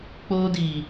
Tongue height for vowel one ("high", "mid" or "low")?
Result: mid